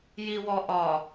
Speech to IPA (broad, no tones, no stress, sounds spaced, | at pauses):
j i w ɔ ʔ ɒ